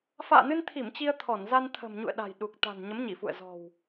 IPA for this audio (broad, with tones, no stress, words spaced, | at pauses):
fa̰ː˧˨nɨ˧nt̪ʰi˧˩m t͡ɕi˧ə̯t̪ʰɔ˧˩nza˧n t̪ʰə̤˨˩m ɲṵ˧˨ə̯ɗa̤˨˩j ɗu˨˩k̚t̪a̤˨˩n ɲə˨˦mɲi˧˩fṵ˧˨ə̯ zɔ̤˨˩w